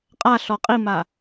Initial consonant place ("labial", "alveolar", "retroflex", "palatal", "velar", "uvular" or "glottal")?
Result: uvular